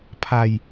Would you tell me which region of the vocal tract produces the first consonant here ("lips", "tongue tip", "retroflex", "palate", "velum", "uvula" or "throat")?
lips